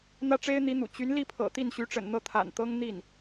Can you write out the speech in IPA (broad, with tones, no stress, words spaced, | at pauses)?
n̪ä˥ʈ͡ʂe˥ɪ̯n̪i˧˥n̪ṵ˨˩ t͡ɕy˧˥nli˥˩pʰɤ̰˨˩ t̪i˥˩nɕy˧˥ʈ͡ʂə̰˨˩n n̪ɤ˥˩t̪ʰa̰˨˩n t̪ɤ˥ŋ n̪i˥˩n